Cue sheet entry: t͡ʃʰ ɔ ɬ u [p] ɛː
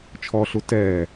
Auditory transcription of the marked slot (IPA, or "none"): t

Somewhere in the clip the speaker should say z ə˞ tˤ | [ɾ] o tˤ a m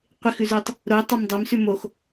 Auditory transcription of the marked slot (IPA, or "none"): ɾ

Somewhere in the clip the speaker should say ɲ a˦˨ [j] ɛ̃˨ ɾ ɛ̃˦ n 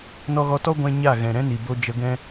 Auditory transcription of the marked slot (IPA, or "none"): ɣ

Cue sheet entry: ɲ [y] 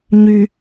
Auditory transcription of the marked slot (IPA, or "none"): y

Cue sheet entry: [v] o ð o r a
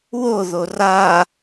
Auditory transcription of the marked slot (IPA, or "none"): w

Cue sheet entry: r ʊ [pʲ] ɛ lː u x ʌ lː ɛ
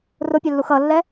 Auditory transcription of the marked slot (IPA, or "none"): pʲ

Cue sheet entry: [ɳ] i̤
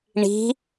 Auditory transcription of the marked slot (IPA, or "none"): ɳ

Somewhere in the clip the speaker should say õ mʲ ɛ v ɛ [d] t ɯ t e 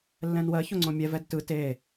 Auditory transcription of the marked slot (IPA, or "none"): d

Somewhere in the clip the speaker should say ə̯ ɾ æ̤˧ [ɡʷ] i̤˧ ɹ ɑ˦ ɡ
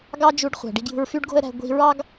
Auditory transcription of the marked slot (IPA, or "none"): ɡʷ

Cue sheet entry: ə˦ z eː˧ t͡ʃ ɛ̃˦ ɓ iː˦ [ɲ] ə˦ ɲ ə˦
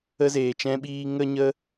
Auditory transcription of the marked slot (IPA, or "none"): ŋ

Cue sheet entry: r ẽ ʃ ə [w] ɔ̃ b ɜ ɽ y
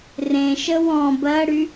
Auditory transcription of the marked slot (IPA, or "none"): w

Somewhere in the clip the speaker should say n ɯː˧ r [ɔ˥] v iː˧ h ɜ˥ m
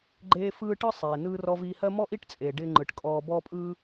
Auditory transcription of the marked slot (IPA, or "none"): ɔ˧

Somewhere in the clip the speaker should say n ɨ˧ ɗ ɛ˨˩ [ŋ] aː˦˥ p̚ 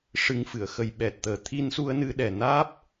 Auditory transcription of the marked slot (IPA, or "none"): n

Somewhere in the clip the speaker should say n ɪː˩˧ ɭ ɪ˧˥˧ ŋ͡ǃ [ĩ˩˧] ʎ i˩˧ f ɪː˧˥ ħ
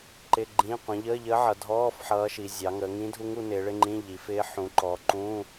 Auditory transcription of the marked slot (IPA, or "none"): ĩ˧˥˧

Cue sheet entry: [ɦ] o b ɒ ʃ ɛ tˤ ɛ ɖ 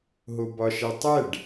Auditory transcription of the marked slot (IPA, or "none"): ɦ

